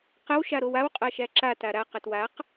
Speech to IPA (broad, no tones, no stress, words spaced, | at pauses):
qəw ʃaɾowaw qʼaʃæǁa taɾa qətwaq